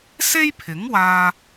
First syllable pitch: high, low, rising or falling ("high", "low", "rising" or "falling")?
high